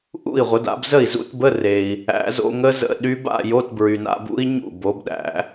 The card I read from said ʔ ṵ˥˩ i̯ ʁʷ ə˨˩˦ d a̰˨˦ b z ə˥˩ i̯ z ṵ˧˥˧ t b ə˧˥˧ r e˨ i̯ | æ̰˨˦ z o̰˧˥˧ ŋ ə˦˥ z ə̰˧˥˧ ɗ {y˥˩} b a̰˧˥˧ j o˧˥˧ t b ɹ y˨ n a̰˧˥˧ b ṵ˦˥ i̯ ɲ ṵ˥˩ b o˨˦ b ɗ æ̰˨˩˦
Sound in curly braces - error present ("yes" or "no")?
yes